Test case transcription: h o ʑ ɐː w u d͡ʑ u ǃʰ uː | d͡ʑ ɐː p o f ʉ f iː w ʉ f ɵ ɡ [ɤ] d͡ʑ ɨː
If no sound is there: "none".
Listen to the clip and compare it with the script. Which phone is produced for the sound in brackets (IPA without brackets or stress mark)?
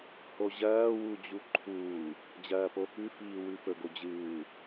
o